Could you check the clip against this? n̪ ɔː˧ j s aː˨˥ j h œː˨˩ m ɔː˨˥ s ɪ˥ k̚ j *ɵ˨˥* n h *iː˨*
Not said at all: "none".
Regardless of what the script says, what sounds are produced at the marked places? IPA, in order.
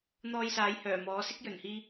ɵ˨˩, iː˧

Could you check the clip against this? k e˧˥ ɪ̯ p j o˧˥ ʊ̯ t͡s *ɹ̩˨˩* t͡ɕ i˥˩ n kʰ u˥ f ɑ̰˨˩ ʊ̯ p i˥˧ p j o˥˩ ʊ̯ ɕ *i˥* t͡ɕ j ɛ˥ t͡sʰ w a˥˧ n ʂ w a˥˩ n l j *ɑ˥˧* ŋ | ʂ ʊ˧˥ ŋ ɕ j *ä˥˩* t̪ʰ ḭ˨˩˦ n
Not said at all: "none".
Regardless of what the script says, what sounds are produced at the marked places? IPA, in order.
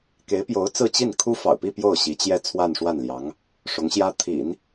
ɹ̩˥˧, i˧˥, ɑ˧˥, ä˥

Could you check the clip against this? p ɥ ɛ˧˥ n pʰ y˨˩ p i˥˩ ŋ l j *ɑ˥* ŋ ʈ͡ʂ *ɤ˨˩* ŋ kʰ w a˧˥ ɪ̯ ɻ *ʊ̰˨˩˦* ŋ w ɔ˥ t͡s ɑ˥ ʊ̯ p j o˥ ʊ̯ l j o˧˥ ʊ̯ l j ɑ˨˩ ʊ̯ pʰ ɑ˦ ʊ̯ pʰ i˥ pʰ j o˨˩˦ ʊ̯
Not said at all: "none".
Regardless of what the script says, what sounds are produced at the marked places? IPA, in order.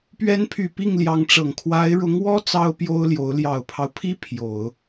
ɑ˧˥, ɤ˨˩, ʊ˧˥

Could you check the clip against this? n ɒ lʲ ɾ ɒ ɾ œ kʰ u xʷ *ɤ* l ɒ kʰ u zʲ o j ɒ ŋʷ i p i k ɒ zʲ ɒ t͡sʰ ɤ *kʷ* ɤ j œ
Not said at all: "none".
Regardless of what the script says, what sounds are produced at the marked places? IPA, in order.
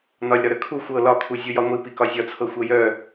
ɤ, xʷ

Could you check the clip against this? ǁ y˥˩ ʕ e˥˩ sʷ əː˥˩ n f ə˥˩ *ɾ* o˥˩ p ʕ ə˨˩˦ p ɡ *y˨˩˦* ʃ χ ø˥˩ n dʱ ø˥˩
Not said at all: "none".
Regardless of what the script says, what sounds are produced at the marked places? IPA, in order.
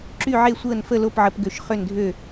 l, ø˨˩˦

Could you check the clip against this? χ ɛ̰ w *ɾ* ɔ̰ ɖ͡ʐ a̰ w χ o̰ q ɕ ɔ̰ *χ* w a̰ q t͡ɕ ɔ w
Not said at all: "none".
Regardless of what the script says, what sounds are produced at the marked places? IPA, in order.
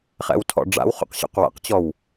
tʰ, q

